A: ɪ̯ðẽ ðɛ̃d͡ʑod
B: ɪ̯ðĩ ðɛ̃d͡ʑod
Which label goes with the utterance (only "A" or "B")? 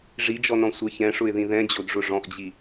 B